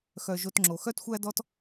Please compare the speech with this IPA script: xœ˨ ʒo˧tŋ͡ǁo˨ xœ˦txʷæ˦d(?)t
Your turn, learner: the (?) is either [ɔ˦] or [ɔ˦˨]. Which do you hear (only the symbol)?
ɔ˦